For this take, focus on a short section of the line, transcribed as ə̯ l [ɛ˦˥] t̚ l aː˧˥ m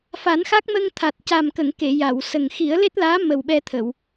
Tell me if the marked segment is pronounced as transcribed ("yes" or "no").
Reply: no